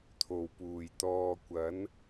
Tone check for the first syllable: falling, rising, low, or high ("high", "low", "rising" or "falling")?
low